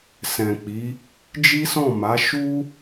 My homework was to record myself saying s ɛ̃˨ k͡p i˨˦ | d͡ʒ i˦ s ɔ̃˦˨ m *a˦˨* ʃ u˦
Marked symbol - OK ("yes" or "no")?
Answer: no